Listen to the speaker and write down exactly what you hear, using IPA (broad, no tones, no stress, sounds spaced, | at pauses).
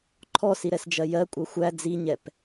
ǃʰ ɔ s i ɾ ɛ s d͡ʒ ɜ j ɜ kʷʼ ʌ xʷ æ d͡z i ɲ ɛ p